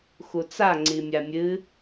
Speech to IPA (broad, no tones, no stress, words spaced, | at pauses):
xut͡sa ŋ͡ǀimʲamʲɨ